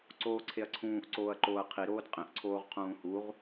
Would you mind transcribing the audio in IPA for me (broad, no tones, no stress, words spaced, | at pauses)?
ǀoːǀʰeɐ̯ǀʰũːʔǀoːɐ̯ ǃoːɐ̯qʰiɾoːd qʼẽʔǀʰoːʁ qʰũːhuʁ